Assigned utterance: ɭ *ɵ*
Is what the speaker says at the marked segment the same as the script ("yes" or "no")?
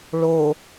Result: no